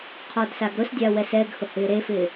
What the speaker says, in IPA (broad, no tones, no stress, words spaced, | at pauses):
qʰɔdsaɡɾʊsdʲa wɛsɛɡhʊ hɪːɾefɪː